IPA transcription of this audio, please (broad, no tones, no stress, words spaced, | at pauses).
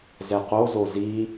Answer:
zɛqozo zi